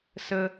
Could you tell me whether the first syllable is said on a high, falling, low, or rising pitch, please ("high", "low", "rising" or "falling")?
high